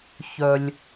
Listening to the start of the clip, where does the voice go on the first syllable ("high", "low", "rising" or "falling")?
low